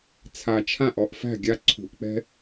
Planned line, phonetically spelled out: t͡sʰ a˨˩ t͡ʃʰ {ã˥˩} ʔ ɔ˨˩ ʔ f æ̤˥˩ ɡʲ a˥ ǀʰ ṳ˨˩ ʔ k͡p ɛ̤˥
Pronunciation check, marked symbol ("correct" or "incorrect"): correct